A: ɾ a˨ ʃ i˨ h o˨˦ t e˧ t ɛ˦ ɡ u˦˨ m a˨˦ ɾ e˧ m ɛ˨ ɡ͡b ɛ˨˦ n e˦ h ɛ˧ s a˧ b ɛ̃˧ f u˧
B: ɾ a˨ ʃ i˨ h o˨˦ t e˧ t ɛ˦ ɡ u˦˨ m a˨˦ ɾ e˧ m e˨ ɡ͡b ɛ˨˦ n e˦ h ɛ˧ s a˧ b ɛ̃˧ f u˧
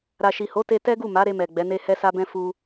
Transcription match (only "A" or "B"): A